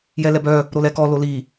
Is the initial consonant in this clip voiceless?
no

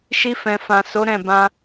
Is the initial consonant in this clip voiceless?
yes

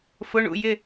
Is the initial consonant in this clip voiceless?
yes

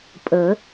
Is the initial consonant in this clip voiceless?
yes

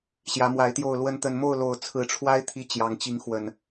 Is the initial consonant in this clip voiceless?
yes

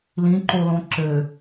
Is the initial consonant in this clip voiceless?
no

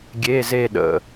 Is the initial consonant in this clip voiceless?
no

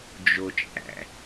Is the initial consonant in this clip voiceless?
no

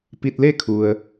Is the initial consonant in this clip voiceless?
yes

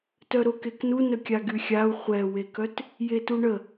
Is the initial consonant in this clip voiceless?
yes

